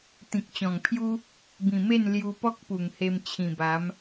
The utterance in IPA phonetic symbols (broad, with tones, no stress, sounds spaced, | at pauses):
t̪ ĩ˨ k̚ t͡ɕ ɔ̃˨˩ ŋ pʰ j u˦ | b ĩ˨˩ m e˥˧ n l j u˧ p ɔ˦ k̚ p u˨˩ ŋ h e˧ m t͡ɕʰ ĩ˨˩ b a˨˦ m